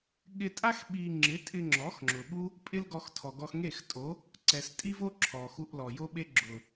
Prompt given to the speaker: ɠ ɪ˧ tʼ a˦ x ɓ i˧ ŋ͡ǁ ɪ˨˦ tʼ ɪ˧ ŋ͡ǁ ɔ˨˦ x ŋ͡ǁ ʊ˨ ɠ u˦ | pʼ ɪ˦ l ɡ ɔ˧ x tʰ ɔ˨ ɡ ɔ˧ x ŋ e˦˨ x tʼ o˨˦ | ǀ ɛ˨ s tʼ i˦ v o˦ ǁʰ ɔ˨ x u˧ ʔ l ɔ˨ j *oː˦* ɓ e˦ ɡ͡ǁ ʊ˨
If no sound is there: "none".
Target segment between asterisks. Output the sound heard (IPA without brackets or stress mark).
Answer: o˦